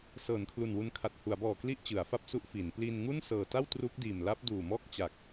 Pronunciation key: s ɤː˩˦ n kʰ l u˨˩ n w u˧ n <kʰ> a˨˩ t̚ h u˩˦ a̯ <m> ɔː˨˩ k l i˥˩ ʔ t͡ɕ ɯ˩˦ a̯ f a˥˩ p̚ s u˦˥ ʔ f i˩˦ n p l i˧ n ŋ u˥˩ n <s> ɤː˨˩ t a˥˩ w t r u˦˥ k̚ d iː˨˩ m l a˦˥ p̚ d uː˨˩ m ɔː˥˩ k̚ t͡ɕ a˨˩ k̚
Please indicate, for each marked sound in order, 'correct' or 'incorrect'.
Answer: correct, incorrect, correct

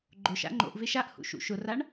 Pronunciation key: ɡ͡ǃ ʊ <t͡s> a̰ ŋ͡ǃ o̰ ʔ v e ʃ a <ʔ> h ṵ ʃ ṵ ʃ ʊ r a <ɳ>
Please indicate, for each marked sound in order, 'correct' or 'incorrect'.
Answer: incorrect, correct, correct

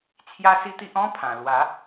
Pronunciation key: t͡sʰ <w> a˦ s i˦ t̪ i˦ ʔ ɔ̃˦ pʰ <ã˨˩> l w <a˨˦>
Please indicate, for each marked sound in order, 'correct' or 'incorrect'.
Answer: incorrect, correct, correct

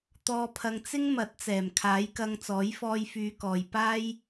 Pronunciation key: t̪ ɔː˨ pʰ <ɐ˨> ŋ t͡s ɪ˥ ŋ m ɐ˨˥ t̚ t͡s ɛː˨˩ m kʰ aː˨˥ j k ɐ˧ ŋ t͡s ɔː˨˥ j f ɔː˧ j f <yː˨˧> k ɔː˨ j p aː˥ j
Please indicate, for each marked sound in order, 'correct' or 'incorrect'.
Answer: correct, correct

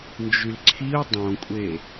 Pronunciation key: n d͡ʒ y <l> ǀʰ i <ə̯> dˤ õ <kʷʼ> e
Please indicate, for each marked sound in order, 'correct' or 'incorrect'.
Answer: correct, incorrect, correct

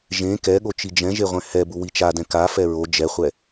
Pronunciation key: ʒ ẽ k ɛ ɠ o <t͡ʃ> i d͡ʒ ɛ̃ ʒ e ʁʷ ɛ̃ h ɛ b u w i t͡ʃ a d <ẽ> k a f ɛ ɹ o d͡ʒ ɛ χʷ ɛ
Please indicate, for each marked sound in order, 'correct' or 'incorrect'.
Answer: correct, incorrect

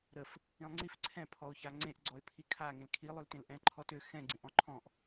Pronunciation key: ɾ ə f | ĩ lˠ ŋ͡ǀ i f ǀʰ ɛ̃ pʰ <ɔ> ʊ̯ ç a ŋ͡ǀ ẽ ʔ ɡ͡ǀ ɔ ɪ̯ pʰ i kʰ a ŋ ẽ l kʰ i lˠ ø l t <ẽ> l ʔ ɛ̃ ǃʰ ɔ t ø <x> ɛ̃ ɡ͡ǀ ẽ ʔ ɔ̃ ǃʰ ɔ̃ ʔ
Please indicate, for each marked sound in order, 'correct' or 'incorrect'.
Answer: correct, correct, correct

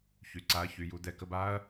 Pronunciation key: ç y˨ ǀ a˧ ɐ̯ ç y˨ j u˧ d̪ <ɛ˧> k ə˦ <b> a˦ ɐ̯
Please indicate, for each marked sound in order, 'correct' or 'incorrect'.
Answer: correct, correct

